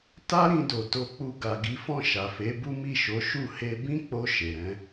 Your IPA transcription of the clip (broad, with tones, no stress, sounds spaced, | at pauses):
t a˦ ɾ ĩ˧ d o˨ t o˧ k͡p u˧ ɡ a˨ ɡ i˨˦ f ɔ̃˦˨ ʃ a˨ f e˨˦ b u˦ m i˦˨ ʃ o˨˦ ʃ u˦˨ h e˧ b ĩ˦ k͡p o˧ ʃ e˨ ɾ ɛ̃˨˦